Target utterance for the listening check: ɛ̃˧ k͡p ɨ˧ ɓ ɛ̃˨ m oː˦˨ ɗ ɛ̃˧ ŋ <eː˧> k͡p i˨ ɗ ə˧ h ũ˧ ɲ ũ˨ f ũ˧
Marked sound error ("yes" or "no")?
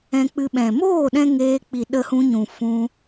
no